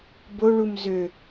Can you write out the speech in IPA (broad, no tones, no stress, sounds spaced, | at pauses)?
b o ɭ u m z ø